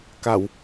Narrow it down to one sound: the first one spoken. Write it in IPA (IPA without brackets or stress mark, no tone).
k